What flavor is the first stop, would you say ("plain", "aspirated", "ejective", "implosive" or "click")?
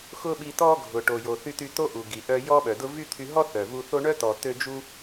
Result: implosive